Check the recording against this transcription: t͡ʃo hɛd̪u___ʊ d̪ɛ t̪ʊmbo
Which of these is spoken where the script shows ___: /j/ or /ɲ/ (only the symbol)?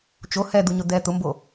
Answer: ɲ